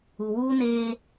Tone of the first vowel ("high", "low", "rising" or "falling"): low